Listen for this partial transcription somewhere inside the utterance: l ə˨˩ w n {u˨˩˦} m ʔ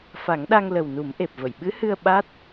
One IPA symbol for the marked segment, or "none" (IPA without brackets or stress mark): u˨˩˦